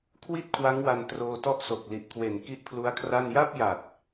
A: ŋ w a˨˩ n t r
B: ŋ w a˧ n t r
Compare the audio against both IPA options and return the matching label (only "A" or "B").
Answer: B